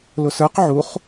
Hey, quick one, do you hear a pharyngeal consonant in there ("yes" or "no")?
yes